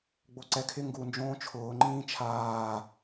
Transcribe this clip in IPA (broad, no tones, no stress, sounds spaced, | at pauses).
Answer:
ɡ͡b o ǀ ɛ kʰ ɪ ŋ ɡ u n d͡ʒ õː t͡ʃʰ ʊː ŋ͡ǃ ĩː t͡ʃʰ aː